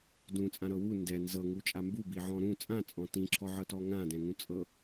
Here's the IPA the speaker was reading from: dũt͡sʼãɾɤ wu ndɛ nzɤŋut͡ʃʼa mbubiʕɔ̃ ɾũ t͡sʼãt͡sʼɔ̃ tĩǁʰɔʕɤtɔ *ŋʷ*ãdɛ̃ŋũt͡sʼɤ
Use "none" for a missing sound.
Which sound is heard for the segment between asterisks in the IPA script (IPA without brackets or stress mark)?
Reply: ŋ